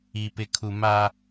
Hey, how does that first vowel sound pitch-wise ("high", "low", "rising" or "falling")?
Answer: low